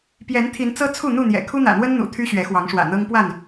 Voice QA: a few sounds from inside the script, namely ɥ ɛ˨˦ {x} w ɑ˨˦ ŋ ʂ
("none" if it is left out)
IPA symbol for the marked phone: x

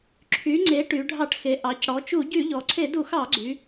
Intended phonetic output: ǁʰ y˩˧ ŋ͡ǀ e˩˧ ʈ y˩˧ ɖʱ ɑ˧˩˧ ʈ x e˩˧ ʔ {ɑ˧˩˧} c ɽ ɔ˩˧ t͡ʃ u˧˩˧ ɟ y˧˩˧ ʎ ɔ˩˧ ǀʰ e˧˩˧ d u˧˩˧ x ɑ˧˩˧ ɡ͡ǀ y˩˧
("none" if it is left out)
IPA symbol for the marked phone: ɑ˩˧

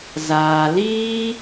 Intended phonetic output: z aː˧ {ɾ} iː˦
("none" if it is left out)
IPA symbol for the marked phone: l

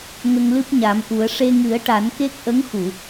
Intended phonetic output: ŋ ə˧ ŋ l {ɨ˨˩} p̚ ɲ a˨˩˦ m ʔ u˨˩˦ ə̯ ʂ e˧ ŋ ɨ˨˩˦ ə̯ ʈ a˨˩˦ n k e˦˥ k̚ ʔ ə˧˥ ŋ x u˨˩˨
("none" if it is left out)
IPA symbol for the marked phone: ɨ˦˥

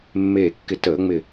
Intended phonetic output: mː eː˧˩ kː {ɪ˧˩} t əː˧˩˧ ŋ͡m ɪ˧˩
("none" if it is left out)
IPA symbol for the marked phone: ɪ˧˩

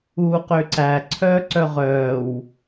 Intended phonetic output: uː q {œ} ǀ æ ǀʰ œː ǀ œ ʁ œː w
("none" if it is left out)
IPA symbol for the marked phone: ø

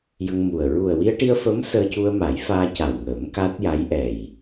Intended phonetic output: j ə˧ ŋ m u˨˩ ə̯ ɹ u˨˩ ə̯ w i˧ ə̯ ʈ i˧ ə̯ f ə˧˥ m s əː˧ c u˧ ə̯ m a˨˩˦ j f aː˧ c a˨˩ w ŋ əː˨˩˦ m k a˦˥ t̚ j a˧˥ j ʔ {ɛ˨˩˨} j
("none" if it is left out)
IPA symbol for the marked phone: ɛ˨˩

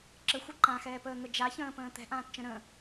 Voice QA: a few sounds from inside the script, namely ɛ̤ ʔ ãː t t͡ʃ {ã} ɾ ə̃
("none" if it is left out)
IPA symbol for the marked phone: ə̃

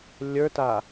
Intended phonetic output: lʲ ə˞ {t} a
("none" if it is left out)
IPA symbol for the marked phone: t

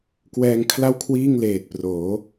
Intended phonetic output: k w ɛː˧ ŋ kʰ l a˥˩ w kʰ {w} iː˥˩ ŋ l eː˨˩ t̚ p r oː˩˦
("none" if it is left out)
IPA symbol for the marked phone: w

